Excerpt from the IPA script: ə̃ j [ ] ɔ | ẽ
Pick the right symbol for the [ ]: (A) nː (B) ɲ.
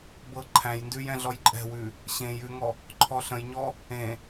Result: B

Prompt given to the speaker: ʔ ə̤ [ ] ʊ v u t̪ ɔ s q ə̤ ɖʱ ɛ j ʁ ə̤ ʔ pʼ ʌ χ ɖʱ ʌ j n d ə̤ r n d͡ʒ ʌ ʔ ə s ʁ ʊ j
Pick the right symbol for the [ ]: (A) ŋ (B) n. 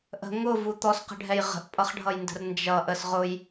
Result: A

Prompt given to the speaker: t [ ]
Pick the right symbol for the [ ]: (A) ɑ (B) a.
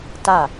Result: B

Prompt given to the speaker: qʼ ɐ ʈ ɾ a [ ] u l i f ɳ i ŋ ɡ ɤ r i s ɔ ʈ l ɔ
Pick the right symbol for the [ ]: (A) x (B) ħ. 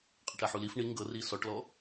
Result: B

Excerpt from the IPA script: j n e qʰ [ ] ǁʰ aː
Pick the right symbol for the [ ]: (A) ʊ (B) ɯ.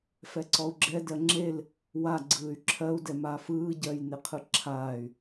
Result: B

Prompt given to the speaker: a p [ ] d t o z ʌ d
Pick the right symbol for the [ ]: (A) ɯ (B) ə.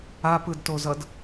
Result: A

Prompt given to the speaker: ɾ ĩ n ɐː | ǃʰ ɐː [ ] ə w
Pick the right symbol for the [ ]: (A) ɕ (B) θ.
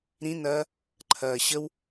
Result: A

